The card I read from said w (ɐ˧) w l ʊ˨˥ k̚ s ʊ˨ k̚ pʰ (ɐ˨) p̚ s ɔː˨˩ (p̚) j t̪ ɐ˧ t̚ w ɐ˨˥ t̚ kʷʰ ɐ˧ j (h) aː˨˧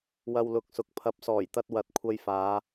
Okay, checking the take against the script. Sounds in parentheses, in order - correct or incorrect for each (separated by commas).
correct, correct, incorrect, incorrect